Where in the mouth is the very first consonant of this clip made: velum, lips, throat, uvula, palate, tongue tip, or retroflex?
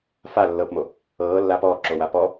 lips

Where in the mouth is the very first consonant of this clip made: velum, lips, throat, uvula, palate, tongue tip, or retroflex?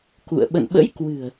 velum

